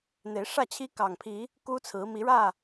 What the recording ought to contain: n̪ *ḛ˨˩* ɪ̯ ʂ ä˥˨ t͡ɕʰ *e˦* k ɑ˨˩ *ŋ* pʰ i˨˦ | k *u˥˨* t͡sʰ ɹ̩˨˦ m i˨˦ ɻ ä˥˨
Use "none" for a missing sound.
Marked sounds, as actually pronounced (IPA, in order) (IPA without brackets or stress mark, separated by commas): e˨˦, i˦, ŋ, u˦